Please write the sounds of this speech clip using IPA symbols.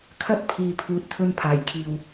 kʰ ɐ˥ t̚ pʰ iː˨ pʰ uː˨ t̚ t̪ʰ ɵ˧ n pʰ aː˨˩ j kʰ iː˨ w

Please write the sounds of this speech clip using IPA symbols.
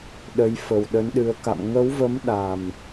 ɗ ə˨˦ j f ə˨˩ w ɗ ə˨˦ n ɗ ɨ˨˦ ə̯ k a̰˧˨ m ŋ ə˨˦ w v ə˨˦ m ɗ a˨˩ m

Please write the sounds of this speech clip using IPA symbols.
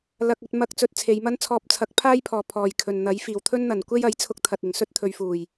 l ɐ˧ k̚ ɵ˧ t̚ m ɐ˧ k̚ t͡s ɵ˧ t̚ t͡sʰ e˨˧ j m ɐ˥ n t͡sʰ ɔː˧ p̚ t͡sʰ ɐ˨˥ k̚ pʰ aː˥ j pʰ ɔː˨ pʰ ɔː˨ j kʰ ɵ˨ n n̪ ɐ˨˥ j f iː˨˩ w t̪ʰ ɵ˥ n n̪ ɐ˨˩ n kʷ e˥ j ɐ˨˥ j t͡sʰ ʊ˧ k̚ t̪ʰ ɐ˨ t̚ ɪ˨˩ ŋ s ɵ˥ t̚ t̪ʰ ɵ˨˧ ɥ f uː˨˩ j

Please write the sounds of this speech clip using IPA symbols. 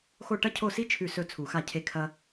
x o˦˨ ʈ ɐ˦ cʰ o˦˨ s i˦ t͡ʃʰ ʉ˦˨ s ɵ˦˨ t͡sʰ u˨˩˦ x a˦˨ cʰ e˦˨ kʰ ɐ˦

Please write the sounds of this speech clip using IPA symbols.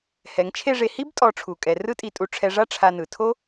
h ɛ˩˧ ŋ t͡ʃʰ e˥˧ ʐ e˧ h i˥ b tʼ ɔ˧ ʈ͡ʂʰ u˩˧ kʼ ɛ˩˧ r ɯ˥ tʼ i˧ tʼ u˧ ʈ͡ʂʰ ɛ˧ ʐ a˥ ʈ͡ʂʰ a˧ n ɯ˩˧ tʰ o˥

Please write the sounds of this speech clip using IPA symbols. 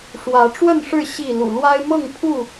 ʂ w ä˨˦ ʈ͡ʂ w ə˥˨ n ʂ ɻ̩˥˨ ɕ i˥˨ l ṵ˨˩ l w a˦ ɪ̯ m ɤ˥˨ ŋ pʰ u˥˨

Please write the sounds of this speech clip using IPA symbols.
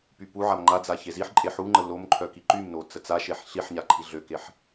p y p u ʕ a m ŋ͡ǃ a d͡z a ç e z i ħ ǃʼ e ħ u ŋ͡ǃ ə l o m ǃʰ œ k i ǃ y m n o t͡s ə t͡s a ʃ e ħ ɬ i ħ ɲ a ǃʰ i ɮ ø k e ħ

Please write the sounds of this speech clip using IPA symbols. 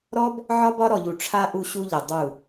ɾ ɔ˦ b | ʕ ɒ˦ b ɒ˦ ɾ ɔ˨ ʎ u˨ ʈ͡ʂʰ a˦ ʔ u˦ ɕ u˦ ʎ ɘ˨ dˤ u˦˨

